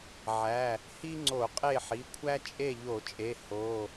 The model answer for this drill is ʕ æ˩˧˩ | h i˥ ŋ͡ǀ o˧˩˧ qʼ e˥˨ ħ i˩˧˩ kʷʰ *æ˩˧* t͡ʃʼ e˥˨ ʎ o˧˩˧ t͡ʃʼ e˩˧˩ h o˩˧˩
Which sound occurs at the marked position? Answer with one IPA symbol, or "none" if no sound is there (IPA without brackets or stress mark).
æ˥